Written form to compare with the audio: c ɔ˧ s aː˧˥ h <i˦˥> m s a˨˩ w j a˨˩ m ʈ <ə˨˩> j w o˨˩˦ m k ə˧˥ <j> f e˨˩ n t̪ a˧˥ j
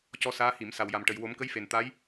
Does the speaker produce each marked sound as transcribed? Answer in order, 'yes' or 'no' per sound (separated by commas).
no, yes, yes